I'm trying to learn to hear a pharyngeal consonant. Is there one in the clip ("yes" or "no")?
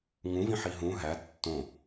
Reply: yes